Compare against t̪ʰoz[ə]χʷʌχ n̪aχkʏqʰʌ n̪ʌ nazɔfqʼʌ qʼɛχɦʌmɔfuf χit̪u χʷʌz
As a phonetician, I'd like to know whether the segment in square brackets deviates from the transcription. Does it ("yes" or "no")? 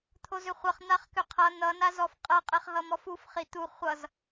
yes